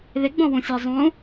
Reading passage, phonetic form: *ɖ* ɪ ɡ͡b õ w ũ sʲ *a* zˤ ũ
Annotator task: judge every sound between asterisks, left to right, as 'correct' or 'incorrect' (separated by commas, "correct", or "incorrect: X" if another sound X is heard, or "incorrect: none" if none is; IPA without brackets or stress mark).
incorrect: ð, correct